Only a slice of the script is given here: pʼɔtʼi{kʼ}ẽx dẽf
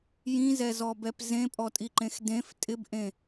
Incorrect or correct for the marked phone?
incorrect: ǃ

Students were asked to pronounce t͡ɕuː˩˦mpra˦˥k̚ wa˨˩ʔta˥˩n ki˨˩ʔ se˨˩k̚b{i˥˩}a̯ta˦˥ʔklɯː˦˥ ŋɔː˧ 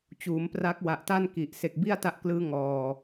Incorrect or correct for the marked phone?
correct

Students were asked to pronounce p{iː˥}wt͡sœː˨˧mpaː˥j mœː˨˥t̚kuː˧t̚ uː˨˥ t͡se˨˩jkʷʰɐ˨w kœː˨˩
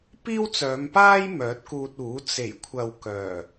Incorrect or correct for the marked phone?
correct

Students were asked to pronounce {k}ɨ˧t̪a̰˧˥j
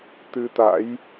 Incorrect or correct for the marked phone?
incorrect: t̪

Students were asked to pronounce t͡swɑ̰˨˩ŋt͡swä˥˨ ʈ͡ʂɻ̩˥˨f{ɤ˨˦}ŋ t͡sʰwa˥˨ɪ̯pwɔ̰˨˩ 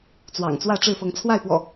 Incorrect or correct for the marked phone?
correct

